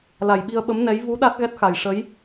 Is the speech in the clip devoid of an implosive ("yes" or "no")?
no